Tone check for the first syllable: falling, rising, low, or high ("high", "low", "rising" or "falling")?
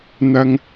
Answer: low